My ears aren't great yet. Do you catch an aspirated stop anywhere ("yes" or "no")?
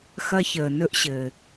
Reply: no